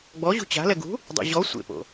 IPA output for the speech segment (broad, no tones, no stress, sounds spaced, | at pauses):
ɡ͡b ɔ ʑ ṳ t͡ɕ a̤ l ɛ ɡ ṳ | dˤ ḛ ʑ ɔ sʷ ḛ p o̰